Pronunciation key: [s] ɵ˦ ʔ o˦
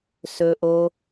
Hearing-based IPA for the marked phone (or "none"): s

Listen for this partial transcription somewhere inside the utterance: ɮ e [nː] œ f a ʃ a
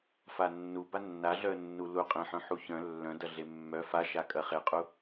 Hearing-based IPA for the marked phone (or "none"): mː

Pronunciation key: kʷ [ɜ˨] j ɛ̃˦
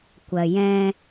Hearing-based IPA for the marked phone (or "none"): ɜ˨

